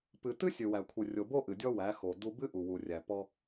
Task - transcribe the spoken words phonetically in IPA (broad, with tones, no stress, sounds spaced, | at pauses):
p ɨ˧ t ɨ˦ sʲ ɨ˨ w æ˨ kʷʰ ɨ˨ rʲ o˨ b o˦ ʔ ɨ˨ dʲ ɔ˦ w æ˨˦ x o˨ d u˧ b ɨ˦ ʔ u˨ w u˨ rʲ æ˨ p ɔ˦